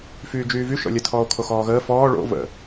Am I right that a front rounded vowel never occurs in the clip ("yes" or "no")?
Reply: no